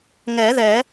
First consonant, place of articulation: velar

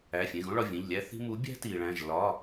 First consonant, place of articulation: labial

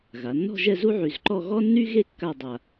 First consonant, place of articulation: velar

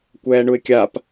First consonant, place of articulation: velar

